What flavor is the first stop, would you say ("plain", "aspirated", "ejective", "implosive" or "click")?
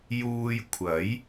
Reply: aspirated